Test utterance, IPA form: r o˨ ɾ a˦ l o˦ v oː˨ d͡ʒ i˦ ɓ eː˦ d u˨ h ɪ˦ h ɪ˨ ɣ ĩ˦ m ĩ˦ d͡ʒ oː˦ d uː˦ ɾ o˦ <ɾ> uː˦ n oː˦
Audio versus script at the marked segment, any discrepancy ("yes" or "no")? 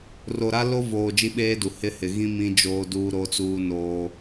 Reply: yes